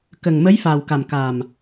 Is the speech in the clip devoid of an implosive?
yes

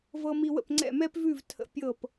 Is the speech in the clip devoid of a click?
no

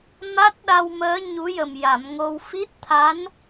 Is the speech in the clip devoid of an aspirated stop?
no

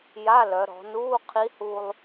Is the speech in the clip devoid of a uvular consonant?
no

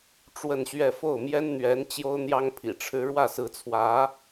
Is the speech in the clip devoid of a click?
yes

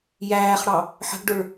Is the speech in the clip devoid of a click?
yes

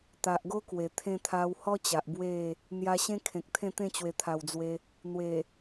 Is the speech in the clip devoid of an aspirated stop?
no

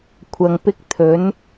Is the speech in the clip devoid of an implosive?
yes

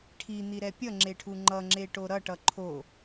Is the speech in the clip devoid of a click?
no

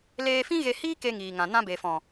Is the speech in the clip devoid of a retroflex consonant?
yes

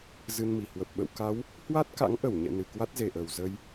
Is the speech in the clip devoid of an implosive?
no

